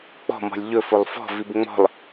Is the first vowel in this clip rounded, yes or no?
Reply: yes